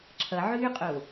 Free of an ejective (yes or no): no